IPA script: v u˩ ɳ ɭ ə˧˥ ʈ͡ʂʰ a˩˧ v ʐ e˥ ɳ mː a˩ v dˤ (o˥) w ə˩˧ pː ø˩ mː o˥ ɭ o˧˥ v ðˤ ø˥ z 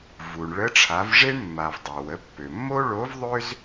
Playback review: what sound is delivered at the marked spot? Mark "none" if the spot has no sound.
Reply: o˩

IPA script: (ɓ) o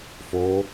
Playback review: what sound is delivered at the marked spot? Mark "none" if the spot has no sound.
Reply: f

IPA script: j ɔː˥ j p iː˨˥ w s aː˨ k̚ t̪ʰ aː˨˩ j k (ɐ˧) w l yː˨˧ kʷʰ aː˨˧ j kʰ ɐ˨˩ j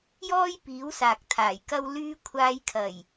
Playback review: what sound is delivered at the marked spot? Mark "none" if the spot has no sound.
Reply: ɐ˧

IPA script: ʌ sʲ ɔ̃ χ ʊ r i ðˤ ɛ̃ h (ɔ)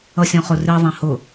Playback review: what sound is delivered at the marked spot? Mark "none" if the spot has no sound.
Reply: ʊ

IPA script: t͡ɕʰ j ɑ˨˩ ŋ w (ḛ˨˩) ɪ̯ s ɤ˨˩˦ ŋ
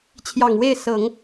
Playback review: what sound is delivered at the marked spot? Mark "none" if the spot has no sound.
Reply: e˥˩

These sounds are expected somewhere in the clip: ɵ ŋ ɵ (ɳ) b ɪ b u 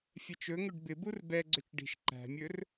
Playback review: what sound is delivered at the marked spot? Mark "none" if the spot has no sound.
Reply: ɖ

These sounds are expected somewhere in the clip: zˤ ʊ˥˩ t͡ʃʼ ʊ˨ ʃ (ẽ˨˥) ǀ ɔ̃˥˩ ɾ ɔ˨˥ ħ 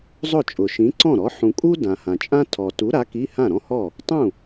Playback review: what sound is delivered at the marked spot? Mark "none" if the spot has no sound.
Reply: ĩ˨˥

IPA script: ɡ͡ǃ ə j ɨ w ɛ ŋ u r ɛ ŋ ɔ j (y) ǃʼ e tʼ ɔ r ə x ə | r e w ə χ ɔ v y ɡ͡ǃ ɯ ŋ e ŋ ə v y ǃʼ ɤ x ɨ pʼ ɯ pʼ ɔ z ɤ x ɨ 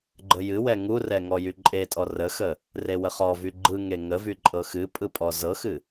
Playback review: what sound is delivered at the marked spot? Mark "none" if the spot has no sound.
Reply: y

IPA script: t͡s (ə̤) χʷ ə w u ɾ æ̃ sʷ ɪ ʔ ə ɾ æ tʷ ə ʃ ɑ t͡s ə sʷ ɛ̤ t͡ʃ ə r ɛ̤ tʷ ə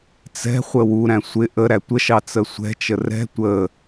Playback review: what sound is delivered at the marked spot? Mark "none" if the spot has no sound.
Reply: ɛ̤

